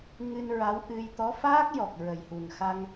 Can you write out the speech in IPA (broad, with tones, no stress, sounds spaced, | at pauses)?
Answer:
ŋ ɨ˧ n ɹ a˧˥ w ʔ ɨ˧ j t̪ ɔ˧˥ f aː˦˥ k̚ j ɔ˨˩ k̚ ɹ ə˨˩ j h u˨˩ n x a˧ ŋ